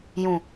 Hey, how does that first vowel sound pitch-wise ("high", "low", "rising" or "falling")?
low